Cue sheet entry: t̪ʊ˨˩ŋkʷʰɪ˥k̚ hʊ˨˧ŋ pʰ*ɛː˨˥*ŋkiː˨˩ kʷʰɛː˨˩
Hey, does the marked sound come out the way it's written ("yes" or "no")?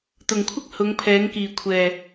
yes